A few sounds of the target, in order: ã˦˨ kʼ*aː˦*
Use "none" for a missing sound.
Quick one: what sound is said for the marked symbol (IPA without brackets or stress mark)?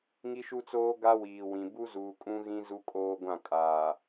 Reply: aː˨